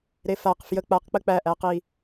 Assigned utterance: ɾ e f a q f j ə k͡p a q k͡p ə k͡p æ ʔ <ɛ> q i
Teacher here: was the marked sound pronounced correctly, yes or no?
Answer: no